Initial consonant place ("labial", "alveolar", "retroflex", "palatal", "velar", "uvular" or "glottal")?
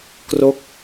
velar